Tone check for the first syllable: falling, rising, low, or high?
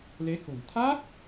rising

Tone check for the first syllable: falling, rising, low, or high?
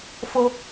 high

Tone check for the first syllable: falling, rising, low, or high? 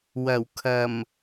low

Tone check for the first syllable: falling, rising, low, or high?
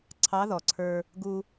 rising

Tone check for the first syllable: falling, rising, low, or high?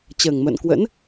low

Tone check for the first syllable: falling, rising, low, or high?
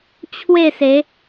falling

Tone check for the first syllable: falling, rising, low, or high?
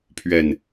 low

